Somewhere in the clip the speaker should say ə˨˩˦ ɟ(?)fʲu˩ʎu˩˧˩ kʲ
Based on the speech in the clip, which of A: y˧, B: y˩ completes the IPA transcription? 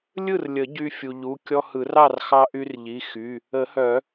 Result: A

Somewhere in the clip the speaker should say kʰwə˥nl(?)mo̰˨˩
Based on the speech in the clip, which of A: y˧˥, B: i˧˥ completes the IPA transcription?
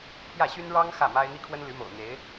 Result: A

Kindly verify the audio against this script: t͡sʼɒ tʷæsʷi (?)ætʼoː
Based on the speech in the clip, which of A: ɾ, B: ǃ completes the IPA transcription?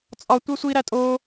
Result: A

